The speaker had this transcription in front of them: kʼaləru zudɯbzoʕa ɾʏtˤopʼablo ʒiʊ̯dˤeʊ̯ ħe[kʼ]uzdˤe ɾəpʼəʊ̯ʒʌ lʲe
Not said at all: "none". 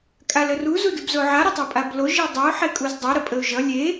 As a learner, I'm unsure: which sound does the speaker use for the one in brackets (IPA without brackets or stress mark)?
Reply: kʼ